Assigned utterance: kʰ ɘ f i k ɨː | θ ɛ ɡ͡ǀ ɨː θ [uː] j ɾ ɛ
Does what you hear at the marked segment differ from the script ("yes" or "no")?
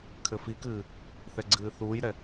no